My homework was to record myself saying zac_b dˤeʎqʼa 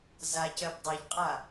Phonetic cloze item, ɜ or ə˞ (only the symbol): ɜ